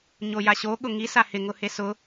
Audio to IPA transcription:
ɲ o j a ɕ o ɠ ʊ ŋ i s a h ɪ ŋ ʊ h e s ʊ

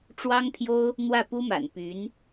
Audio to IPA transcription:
ʈ͡ʂ w ɑ˥ ŋ pʰ j o˥ ʊ̯ | n̪ w ä˥˩ p u˥ m a̰˨˩ n p y˧˥ n

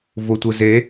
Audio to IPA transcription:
v ʊ tʷ ɯ z e

